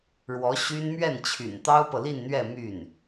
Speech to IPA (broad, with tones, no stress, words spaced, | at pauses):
ɻwɔ˧˥ɕy˥n mɥɛ˥˩nt͡ɕʰy̰˨˩n t̪ɑ˥ʊ̯pɤ˨li˥˧nn̪ɥɛ˥˧ my˥˩n